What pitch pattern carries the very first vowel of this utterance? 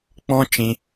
high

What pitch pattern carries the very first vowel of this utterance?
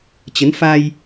rising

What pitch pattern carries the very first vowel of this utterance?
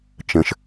high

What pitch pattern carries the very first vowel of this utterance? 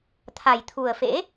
low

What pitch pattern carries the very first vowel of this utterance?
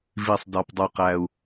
low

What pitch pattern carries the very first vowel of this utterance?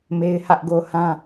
high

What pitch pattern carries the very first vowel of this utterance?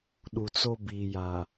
low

